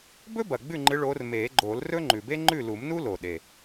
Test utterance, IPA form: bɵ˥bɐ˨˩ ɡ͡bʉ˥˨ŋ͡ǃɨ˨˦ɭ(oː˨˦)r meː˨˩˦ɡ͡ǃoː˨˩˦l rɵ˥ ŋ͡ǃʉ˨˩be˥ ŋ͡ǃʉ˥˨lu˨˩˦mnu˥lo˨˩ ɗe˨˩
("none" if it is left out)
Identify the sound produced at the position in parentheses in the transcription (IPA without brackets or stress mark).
oː˨˦